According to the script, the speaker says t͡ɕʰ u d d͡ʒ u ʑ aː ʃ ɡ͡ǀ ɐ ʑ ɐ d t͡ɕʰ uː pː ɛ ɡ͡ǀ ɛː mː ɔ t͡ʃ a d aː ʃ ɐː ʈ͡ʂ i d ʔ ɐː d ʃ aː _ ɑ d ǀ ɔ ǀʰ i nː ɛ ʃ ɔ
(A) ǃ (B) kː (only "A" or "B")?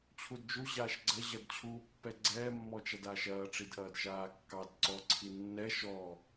B